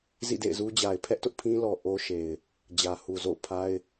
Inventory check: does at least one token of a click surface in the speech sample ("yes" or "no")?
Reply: no